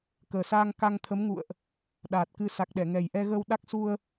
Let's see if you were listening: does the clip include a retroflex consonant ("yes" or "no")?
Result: no